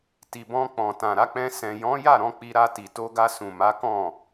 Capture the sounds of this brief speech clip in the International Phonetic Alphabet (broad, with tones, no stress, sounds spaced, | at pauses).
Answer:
t i˨ b ɔ̃˧ k͡p ɔ̃˨ t ã˨ ɾ a˧ k͡p ɛ̃˧ s ɛ̃˨ j ɔ̃˨˦ j a˦˨ ɾ ɔ̃˧ k͡p i˧ ɾ a˧ t i˨ t o˧ ɡ a˧ s ũ˨ m a˨˦ k ɔ̃˦˨